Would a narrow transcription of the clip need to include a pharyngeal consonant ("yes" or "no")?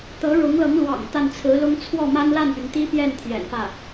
no